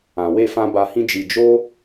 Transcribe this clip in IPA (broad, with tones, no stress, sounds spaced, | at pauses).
ã˨ w e˧ f ã˧ b a˧ h ĩ˦ d͡ʒ i˧ d͡ʒ o˦